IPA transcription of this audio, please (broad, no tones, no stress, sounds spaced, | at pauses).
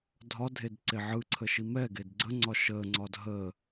dʱ ɒ dʱ e d ǀ e ʕ ɯ ǀʰ ə ʃ i m ɛ ɡ e d ɡ͡ǀ ə ŋ͡ǀ ɒ ʃ əː ŋ͡ǀ ɒː d ɦ əː